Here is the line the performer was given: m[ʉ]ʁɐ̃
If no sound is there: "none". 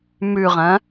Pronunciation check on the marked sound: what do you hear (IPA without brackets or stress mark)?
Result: ʉ